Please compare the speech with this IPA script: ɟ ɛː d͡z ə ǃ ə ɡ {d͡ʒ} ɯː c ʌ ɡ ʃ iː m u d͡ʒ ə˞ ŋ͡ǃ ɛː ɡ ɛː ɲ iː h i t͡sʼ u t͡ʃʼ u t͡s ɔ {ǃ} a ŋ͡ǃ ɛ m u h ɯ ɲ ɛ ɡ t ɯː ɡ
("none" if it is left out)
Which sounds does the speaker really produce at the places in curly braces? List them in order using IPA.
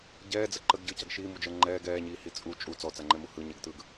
ɟ, t͡s

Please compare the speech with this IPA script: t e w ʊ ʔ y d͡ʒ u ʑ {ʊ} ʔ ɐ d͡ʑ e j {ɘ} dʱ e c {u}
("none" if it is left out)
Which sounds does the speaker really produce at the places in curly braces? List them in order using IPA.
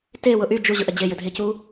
ʊ, ɘ, u

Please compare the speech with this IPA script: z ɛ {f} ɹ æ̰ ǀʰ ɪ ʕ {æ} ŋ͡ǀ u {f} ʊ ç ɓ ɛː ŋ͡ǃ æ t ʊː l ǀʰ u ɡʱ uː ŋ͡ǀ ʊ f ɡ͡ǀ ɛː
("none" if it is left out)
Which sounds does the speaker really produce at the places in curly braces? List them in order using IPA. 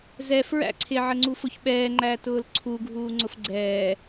f, ə, f

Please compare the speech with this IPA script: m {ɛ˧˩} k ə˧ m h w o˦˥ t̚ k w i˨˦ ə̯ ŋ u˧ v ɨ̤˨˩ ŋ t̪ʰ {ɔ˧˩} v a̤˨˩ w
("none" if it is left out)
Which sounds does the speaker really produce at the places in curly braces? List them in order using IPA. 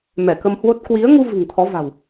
ɛ˧˩, ɔ˨˦

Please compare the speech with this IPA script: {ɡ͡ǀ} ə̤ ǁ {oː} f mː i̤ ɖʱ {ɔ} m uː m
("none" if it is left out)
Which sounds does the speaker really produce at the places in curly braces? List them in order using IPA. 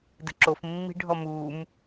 d, o, ɔ

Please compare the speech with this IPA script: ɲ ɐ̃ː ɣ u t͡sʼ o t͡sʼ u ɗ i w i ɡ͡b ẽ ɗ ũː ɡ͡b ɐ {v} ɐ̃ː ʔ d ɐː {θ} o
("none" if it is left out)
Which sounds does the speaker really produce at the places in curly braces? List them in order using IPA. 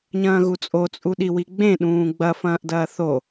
f, θ

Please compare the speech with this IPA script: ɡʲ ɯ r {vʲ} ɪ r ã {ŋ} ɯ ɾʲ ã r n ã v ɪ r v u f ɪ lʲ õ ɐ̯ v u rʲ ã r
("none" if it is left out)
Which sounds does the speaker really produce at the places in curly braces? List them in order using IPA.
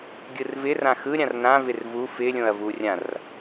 v, x

